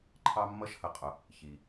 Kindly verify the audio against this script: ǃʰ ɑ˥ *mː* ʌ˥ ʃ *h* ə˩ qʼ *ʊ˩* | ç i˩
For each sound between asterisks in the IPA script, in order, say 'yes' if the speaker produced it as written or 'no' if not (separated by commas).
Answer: yes, yes, yes